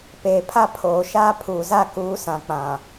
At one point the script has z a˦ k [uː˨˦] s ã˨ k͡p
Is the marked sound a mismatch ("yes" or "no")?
no